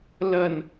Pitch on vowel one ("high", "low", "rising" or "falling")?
low